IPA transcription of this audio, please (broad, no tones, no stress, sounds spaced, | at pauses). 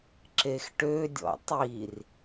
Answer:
ǁ e x ʈ ø dʲ ɔ̰ tˤ i r